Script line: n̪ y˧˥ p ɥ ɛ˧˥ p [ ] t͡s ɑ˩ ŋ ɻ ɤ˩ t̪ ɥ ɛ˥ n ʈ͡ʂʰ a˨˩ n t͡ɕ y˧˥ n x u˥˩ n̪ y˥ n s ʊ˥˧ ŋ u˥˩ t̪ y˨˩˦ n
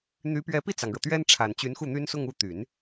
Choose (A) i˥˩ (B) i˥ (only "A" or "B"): A